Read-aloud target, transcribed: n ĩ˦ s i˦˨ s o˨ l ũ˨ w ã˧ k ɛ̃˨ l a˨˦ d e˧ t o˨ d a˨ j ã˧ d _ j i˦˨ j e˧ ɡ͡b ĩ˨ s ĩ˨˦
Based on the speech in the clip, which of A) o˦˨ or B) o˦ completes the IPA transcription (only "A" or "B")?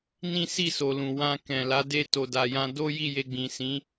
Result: B